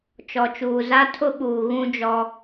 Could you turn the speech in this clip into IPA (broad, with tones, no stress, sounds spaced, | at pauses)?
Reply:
t͡ʃ ɔ˨ t͡ʃ uː˨ z a˦ tʰ ʊ˦ ɓ uː˨ ɣ ũ˦ d͡ʒ ɔ˦